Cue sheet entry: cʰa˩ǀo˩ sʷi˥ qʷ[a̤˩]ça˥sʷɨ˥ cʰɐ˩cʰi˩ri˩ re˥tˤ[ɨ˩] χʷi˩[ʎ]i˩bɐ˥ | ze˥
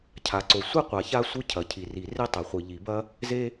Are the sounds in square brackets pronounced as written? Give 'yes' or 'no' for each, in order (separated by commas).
no, no, yes